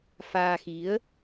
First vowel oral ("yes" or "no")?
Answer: yes